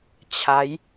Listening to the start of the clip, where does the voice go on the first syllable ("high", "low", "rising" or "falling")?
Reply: rising